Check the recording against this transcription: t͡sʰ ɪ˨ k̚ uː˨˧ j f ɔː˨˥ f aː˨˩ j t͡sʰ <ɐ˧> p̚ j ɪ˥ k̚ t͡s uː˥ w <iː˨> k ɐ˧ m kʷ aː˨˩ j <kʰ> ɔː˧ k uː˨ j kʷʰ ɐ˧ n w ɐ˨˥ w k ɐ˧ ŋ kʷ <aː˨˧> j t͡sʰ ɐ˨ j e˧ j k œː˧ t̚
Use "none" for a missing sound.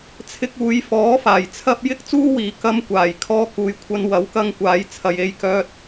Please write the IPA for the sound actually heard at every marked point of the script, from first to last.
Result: ɐ˧, iː˨˧, kʰ, aː˨˧

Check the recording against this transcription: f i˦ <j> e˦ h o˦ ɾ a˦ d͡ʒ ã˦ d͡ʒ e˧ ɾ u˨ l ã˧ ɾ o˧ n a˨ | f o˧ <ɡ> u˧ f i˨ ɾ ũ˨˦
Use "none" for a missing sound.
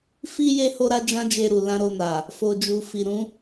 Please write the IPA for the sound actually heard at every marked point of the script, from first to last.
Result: j, d͡ʒ

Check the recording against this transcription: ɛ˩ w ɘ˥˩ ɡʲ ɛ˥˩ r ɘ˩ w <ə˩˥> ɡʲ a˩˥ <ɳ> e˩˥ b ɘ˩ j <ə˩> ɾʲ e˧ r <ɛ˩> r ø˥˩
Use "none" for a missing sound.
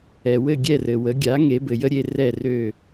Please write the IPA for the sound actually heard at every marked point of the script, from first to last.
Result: ə˩˥, ŋ, ə˥, ɛ˥˩

